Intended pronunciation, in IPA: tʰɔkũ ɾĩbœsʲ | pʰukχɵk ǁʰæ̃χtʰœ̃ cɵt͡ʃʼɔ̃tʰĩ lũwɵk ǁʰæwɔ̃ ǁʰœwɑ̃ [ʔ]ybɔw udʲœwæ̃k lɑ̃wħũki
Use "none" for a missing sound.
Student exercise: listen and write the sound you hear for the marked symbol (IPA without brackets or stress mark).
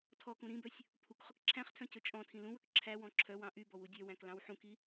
ʔ